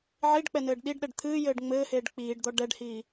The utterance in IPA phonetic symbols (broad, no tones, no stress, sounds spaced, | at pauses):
ʕ i ɖ k͡p ɛ n ɘː ɖ ɗ i ɖ ɗ ɛ ɖ t̪ʰ ɨː j ɘː ɖ ŋ͡m ɘː h eː ɖ k͡p iː ɖ d̪ ɔ ɖ ɛ ɖ h iː